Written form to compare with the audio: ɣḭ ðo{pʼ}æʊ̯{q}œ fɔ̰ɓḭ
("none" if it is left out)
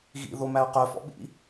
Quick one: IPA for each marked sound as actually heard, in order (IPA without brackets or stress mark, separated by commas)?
m, q